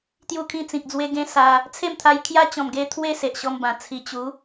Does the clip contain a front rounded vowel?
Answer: no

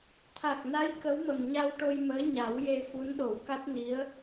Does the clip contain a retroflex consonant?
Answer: yes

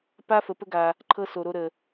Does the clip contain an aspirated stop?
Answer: yes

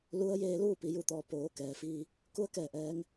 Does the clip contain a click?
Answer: no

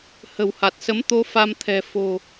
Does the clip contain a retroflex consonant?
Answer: no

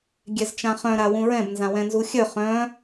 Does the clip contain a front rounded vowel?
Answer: yes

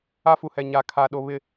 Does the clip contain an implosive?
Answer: yes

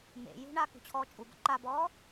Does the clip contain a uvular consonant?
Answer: no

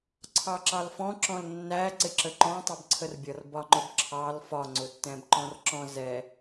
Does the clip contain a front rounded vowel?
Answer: no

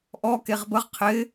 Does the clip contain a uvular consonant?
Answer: yes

